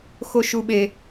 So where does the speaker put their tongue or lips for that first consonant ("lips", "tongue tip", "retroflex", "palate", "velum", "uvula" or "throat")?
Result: velum